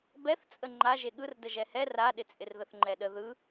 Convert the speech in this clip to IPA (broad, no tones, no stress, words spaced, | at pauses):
bɛθt͡sʼə ŋ͡ǃaʒe ɠɯrdə ʒɛhɛ raɗɪt͡sʼɪr ðəθŋ͡ǃɛɗə ðɯ